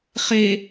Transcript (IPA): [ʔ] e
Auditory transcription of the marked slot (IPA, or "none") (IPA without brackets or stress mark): χ